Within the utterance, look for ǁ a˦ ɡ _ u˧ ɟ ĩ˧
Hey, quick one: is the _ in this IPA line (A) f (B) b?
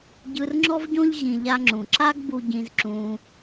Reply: B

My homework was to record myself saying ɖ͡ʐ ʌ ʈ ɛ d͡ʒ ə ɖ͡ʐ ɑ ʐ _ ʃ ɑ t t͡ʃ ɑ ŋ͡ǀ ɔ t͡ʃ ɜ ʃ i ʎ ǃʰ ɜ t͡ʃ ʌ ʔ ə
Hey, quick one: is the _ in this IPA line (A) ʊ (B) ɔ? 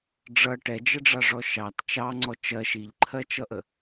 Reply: B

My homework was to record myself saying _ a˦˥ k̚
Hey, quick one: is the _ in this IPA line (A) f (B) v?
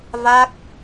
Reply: B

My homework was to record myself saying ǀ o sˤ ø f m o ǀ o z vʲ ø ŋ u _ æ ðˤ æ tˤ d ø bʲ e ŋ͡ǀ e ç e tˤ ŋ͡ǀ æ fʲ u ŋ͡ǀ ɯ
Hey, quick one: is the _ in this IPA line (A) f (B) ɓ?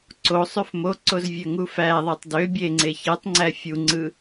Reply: A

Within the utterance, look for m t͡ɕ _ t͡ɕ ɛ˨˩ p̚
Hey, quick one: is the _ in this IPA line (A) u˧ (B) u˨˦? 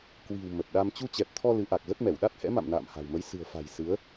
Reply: A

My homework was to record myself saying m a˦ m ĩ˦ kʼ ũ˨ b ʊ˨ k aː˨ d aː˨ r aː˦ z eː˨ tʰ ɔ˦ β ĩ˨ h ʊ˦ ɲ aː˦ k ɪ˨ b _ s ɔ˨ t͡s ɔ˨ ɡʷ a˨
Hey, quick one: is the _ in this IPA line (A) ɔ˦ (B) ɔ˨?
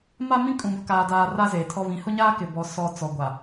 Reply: B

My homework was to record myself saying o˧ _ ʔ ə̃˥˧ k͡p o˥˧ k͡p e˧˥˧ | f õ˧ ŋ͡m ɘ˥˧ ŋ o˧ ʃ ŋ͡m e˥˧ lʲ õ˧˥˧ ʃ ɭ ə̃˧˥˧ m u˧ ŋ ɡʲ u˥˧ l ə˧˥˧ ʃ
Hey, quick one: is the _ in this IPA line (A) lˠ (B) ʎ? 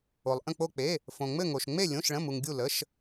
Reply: A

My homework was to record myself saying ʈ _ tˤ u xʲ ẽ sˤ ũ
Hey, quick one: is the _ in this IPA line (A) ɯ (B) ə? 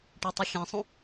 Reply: A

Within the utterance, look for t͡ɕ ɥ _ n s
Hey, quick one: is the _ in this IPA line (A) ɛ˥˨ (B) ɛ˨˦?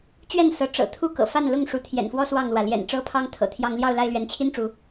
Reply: A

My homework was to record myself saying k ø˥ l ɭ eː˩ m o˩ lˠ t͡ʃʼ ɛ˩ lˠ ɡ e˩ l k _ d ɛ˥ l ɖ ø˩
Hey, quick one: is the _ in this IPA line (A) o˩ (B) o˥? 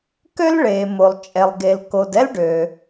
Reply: A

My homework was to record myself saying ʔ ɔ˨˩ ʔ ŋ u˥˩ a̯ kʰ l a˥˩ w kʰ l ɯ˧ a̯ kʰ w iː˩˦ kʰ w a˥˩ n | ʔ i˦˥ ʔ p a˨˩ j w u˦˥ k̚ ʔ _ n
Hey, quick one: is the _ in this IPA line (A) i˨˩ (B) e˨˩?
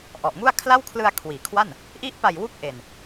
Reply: B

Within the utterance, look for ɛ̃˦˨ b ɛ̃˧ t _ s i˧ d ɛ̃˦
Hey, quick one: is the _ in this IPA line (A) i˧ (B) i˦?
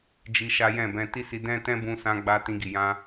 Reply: B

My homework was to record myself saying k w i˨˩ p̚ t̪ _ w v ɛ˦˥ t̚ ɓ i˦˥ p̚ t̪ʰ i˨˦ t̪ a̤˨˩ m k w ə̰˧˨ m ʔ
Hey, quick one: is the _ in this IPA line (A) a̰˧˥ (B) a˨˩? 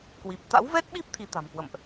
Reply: A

